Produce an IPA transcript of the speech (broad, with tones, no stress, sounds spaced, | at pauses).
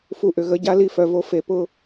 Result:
f u˨ ʔ ʏ˨ ɣ ə˨˦ ɟ a˦ l i˦ f œ˨ v o˦ f e˨ p ʊ˦